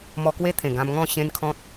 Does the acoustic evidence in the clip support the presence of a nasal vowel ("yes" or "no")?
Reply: yes